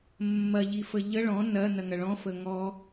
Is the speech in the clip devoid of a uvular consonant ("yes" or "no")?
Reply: yes